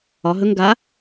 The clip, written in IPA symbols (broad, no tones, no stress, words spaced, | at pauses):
ɒ ɦɵŋ ɡa